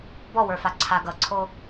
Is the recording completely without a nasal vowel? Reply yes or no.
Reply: yes